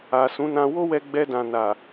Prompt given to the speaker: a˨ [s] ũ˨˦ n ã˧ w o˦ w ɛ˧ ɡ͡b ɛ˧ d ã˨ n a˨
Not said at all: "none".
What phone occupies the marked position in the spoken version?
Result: s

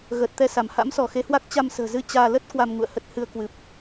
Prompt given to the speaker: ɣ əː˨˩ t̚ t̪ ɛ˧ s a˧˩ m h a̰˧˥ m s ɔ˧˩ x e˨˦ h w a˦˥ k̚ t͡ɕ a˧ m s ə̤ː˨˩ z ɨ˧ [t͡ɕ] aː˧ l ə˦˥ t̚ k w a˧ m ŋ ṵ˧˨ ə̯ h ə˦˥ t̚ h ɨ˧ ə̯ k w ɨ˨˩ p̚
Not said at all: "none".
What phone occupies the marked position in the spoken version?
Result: t͡ɕ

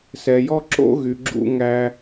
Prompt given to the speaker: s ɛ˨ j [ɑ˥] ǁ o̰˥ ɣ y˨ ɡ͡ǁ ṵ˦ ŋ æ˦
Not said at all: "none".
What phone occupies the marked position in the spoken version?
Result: ɔ˥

